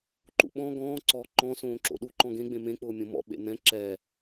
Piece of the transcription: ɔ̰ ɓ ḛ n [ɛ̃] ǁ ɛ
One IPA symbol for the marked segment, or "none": ɛ̃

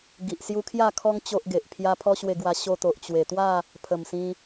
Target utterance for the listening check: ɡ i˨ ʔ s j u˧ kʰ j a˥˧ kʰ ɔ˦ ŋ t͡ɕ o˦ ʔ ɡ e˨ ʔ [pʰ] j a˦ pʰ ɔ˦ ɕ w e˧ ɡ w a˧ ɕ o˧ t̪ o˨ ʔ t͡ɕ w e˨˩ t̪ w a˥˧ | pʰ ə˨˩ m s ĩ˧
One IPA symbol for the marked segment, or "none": pʰ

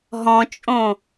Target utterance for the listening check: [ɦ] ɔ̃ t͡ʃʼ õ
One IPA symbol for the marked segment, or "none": ɦ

